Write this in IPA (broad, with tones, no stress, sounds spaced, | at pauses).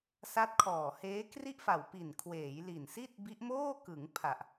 s a˦˥ t̚ kʰ ɔː˨˩ h eː˦˥ k r i˥˩ ʔ f a˨˩ w p i˨˩ n kʰ w eː˩˦ j l i˨˩ n s i˥˩ t̚ b i˦˥ ʔ m oː˥˩ k ɯ˩˦ ŋ pʰ a˨˩ ʔ